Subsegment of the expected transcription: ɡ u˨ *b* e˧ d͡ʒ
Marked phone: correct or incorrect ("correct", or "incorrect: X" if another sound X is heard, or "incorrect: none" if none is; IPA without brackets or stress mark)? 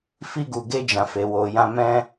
incorrect: ɡ